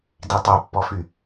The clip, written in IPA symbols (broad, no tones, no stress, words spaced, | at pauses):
ditˤœpːɔfy